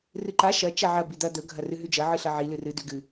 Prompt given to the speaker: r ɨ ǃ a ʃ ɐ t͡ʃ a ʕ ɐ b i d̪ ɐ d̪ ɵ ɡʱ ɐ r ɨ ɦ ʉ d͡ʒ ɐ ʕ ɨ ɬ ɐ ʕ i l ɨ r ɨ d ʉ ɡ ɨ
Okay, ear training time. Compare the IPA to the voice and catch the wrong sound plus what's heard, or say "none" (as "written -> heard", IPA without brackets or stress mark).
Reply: none